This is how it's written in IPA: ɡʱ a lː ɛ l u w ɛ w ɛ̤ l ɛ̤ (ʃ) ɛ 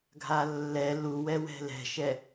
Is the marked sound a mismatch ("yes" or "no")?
no